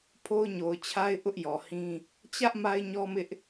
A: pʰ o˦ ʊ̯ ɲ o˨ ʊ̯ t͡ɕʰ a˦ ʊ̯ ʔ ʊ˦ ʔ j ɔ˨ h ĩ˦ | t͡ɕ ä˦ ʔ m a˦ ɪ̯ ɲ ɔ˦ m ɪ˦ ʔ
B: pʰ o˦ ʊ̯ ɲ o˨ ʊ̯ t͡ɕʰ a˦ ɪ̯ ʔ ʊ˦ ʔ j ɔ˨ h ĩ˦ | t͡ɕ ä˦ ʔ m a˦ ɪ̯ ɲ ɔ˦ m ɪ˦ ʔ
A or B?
B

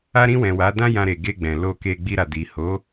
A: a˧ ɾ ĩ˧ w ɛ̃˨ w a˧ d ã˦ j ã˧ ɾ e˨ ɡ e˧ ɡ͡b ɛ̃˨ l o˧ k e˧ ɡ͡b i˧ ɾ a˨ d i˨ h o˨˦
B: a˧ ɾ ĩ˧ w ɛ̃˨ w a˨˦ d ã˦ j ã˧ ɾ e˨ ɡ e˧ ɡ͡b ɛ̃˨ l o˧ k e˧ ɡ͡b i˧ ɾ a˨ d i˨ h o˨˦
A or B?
B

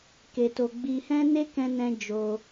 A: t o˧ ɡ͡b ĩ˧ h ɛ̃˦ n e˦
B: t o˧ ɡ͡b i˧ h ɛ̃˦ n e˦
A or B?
B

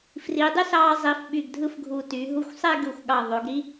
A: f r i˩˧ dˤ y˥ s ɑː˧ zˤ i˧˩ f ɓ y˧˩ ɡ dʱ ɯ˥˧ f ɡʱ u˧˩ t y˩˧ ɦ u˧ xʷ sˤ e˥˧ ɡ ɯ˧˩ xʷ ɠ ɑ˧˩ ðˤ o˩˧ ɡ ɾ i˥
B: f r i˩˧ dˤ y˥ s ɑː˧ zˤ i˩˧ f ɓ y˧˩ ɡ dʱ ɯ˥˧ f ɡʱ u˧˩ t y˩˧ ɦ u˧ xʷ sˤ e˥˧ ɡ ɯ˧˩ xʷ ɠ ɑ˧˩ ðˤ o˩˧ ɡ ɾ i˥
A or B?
B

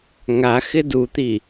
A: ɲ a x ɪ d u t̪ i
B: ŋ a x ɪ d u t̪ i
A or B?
B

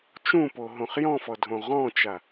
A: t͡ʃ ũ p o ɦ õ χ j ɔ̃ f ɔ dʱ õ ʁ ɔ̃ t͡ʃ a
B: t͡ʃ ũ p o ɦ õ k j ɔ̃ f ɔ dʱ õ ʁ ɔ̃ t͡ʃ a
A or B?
A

